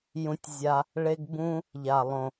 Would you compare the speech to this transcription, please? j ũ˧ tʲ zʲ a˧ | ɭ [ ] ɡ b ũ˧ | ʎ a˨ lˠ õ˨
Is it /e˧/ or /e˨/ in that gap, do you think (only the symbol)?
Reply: e˧